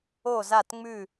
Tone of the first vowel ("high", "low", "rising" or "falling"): falling